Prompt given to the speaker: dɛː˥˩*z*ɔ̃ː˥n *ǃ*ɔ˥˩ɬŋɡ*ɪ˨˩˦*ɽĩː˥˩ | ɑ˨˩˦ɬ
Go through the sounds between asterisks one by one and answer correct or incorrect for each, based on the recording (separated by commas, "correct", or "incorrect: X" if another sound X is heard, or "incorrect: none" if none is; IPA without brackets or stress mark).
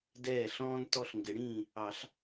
incorrect: ɬ, incorrect: t, correct